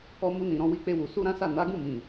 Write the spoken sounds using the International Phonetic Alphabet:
ɔ˧mu˧nĩ˨ ɾɔ̃˧wi˧k͡pe˧wu˨ su˧ɾã˦sa˦˨ na˨˦ɡũ˦˨mĩ˨

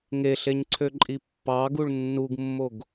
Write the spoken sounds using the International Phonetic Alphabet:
ŋeɬeɲǀʰøǃʼi pːɑɡuɭ nːuɡmːoɡ

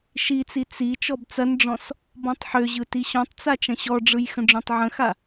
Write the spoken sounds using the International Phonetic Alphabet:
ʃit͡si t͡si t͡ʃɔbt͡sɐnɖ͡ʐɔ̃s | bɔ̃tˤħøʑɯ tiɕɔ̃tˤt͡sa t͡ʃɐ̃ɕɔɖ͡ʐɯj xə̃ɖ͡ʐõtˤʕə̃xa

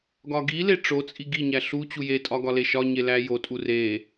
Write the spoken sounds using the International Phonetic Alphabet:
ɡɒɡile ʈ͡ʂot͡sʼi ɡiɲæ ɬu t͡ɕujetʼɒ ɡɒleʃɒɲe læjotʼu re

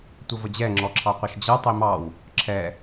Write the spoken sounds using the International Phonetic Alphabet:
tʷəvəd͡ʑɛ ŋ͡ǁɔǁʰɑqʷəʃd͡ʑʌ tˤimɑw | ǁʰɛ

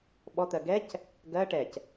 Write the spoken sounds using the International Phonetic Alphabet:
ɓɔt̪ɜ ɡɛc | ɡɜ ʈɛc

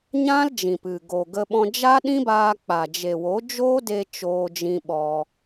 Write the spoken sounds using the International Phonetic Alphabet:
ɲã˦l d͡ʒĩ˨pɨ˨ɡo˨ ɡə˧ɓɔ̃˧ d͡ʒa˦ɗĩ˦baː˧k͡pa˨ d͡ʒe˨wo˨˦d͡ʒoː˦de˧ t͡ʃoː˧d͡ʒĩ˧ ɓɔ˧

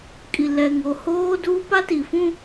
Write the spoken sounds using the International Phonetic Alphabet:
kʼi˨lɛ˨ ŋo˨hoː˦duː˦ pa˦ti˨fũ˦

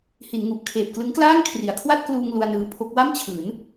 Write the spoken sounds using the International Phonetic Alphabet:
hi˩˦n ŋu˨˩ʔ kʰeː˨˩p̚klɯ˦˥ŋklaː˥˩ŋ kʰri˩˦a̯kʰwa˥˩t̚kluː˧ŋ lu˧a̯nɯː˧pʰo˦˥k̚ wa˥˩mt͡ɕʰɯː˩˦n

